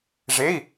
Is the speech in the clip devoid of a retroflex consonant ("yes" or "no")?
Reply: no